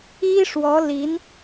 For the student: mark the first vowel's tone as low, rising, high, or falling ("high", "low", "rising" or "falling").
high